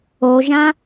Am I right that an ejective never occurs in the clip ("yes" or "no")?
yes